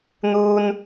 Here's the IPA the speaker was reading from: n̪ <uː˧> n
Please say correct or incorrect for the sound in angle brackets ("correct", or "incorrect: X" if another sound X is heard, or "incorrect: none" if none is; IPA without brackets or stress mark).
correct